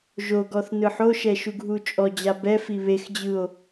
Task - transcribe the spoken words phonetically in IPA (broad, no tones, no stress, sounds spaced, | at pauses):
ʒ o ɡ ɔ θ n ɯ ħ o ʃ ɛ ʃ u ɡʱ u t͡ʃʼ ɔ d͡ʑ a b ɛ f i β e x d͡ʑ ɯ o̯